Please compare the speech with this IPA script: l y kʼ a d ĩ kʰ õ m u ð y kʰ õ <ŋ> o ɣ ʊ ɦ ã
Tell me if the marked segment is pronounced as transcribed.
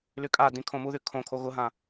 no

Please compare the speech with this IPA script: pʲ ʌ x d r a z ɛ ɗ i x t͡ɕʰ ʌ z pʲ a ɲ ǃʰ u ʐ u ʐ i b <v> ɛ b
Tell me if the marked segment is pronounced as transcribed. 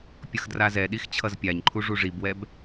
no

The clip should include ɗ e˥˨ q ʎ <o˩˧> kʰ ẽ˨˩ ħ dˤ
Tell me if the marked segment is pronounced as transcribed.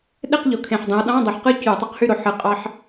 yes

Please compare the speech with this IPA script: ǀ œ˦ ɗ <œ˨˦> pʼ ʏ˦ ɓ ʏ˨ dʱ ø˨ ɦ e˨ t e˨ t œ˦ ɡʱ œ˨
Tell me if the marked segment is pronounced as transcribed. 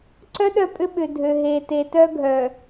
no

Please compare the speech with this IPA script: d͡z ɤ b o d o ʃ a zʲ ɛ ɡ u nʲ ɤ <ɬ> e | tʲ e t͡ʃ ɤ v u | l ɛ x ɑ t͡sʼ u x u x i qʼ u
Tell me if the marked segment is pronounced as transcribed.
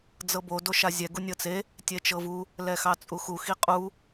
no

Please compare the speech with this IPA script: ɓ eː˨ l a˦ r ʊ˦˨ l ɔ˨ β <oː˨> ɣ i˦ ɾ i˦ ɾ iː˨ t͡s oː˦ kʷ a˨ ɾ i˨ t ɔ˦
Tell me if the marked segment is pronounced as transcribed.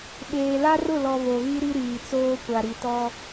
no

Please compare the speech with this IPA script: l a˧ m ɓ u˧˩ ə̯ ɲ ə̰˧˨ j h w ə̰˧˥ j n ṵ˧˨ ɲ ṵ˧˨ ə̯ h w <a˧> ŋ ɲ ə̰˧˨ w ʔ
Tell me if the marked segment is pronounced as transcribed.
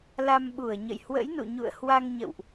yes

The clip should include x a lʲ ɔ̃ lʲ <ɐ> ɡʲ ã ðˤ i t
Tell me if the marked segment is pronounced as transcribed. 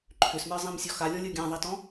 no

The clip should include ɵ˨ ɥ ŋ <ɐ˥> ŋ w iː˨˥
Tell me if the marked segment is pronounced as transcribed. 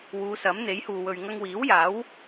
no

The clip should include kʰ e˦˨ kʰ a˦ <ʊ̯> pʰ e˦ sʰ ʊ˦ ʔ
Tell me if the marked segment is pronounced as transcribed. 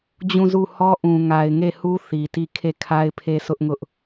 no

